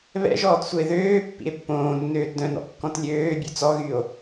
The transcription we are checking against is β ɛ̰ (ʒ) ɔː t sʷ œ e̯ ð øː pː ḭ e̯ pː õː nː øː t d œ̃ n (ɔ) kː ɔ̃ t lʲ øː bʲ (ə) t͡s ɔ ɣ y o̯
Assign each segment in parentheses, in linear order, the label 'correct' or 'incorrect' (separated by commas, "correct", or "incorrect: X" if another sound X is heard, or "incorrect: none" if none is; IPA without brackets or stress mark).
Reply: correct, incorrect: ɔ̰, incorrect: ø